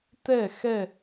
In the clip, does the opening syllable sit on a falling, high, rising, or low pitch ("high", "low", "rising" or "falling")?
falling